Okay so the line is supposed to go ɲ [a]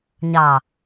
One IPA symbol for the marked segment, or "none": ɑ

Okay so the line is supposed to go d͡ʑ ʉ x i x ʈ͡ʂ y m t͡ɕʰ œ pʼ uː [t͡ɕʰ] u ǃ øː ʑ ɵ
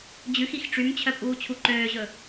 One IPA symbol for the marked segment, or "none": t͡ɕʰ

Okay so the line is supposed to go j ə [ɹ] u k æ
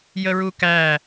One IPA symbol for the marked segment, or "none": ɹ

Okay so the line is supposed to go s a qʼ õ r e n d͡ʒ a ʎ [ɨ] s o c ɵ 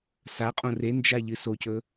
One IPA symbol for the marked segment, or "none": ɨ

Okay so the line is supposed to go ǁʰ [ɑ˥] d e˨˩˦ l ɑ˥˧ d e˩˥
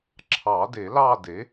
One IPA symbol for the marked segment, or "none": ɑ˨˩˦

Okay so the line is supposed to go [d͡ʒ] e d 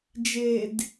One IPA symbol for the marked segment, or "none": d͡ʒ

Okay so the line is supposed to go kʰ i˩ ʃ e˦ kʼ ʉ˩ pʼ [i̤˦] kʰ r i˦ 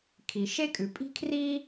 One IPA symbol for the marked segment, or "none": i̤˦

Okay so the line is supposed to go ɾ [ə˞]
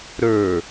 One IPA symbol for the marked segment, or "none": ə˞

